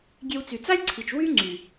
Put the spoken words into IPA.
ɡʲ e˧ w t͡s y˨ t͡s a˦ lʲ ǀʰ i˨ t͡ʃ w y˦ ŋ͡ǀ y˨

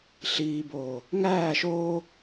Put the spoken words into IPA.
ɬ iː b oː | ŋ æː ʃ oː

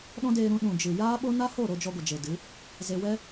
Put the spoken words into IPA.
ɗ ɔ̃˦ d eː˧ ɾ ũ˧ ɗ ũ˨ d͡ʒ ɨ˨ j aː˦ ɓ o˦ n a˦ h o˦˨ ɾ o˧ d͡ʒ ɔ˧ ɡʷ ə˨ d͡ʒ e˨ d ɨ˨˦ | z e˧ w ɛ˦

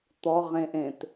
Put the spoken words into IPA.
t̪ ɔ ʁ ẽ ʔ ẽ t

